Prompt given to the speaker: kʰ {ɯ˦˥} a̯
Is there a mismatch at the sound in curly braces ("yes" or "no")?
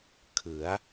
yes